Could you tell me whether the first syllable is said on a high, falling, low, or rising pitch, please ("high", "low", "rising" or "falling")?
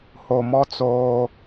low